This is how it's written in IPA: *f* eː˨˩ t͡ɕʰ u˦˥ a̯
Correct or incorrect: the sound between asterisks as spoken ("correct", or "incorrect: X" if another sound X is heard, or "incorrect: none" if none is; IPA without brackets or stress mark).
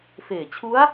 correct